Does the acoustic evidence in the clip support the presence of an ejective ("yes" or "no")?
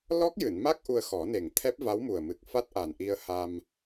no